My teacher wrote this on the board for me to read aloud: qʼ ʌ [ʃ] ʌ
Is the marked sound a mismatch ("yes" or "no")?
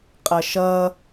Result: no